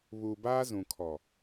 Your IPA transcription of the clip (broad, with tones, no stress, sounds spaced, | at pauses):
β uː˨ b aː˦ z ũ˨ kʰ ɔ˨